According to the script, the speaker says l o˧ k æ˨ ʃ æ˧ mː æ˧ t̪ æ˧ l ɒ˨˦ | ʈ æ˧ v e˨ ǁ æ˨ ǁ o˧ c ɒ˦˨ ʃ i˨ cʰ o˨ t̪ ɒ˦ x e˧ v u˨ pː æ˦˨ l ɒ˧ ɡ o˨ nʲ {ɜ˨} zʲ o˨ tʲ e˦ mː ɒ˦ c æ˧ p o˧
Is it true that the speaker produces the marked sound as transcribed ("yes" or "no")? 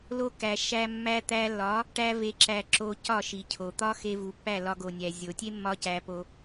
no